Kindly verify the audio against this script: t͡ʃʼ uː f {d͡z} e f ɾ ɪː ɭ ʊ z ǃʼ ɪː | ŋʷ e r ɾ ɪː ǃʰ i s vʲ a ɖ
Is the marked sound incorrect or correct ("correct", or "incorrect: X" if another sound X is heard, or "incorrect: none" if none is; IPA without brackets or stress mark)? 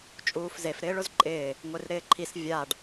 incorrect: z